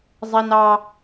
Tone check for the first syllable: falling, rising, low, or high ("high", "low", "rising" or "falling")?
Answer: high